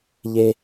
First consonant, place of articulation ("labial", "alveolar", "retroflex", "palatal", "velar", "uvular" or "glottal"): palatal